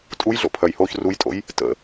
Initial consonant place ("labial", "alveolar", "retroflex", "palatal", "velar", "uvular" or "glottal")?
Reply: alveolar